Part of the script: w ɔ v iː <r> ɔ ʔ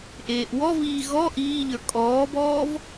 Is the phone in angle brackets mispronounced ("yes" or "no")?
yes